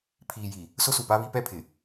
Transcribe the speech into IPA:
pʰ iː˨ j i˨ | s ʊ˦ s u˨ p a˦ β i˦ p ɛ˦ pʰ ɪ˨

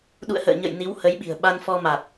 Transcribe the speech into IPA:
ɗ ṵ˧˨ ə̯ h ə̰ː˧˨ ɲ ə̰˧˨ j n i˨˦ w h ə˨˦ j ɓ i̤˨˩ ə̯ ɓ a˧ n f ɔ˧ m a˨˩ t̚

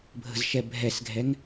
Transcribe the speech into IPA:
bʱ ə̤ z ʃ ɛ bʱ ɛ s ɡʱ ɛ ŋ

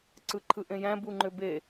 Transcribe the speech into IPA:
ǀ ɯ ǃʰ ɯ ʔ ẽ j æ̃ b u ŋ͡ǃ ø b e

